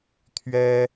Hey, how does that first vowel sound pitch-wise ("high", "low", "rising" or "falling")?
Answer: high